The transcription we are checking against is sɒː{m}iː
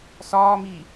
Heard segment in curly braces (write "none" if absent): m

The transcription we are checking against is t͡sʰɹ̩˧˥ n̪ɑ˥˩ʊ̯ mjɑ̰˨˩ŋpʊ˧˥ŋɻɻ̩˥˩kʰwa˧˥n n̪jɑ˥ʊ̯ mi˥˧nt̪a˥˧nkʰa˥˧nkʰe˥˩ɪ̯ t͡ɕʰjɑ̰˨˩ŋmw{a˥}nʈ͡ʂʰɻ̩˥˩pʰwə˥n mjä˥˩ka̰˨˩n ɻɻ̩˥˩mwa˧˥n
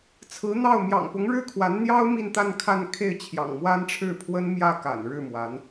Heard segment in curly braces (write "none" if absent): a˥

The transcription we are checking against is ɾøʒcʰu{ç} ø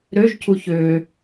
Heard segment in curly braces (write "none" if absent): ç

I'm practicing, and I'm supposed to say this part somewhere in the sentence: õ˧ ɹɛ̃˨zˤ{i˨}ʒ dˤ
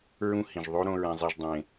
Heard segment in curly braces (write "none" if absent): i˨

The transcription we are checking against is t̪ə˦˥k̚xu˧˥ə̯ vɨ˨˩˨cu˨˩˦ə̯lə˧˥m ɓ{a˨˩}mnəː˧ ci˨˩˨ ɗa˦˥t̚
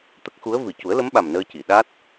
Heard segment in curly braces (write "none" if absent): a˨˩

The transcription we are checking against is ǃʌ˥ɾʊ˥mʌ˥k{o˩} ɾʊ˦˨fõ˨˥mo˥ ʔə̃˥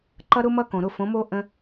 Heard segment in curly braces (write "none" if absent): õ˩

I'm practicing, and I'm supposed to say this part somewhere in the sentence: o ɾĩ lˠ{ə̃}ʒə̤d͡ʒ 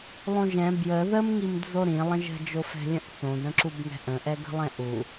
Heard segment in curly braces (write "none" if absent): ə̃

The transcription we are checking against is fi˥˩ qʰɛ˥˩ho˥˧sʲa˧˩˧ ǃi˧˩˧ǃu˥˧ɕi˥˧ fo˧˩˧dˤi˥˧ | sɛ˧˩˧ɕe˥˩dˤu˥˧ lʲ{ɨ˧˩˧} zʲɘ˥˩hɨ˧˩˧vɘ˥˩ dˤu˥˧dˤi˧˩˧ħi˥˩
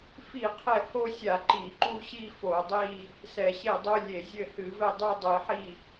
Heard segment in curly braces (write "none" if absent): e˧˩˧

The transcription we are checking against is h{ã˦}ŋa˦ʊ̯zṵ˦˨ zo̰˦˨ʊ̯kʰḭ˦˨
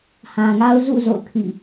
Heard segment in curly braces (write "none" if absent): ã˨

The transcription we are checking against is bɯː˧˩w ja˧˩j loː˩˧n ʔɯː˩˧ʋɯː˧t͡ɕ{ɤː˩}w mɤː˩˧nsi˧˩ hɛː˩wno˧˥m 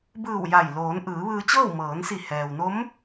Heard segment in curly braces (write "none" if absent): ɤː˥˨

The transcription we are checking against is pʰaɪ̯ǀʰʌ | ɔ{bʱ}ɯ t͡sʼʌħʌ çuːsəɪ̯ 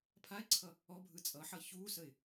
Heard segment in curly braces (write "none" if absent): bʱ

